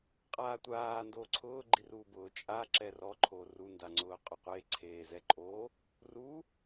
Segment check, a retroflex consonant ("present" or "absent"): absent